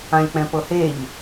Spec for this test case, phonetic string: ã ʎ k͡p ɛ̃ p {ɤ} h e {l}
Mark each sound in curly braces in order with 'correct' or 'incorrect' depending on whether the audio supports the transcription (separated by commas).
correct, incorrect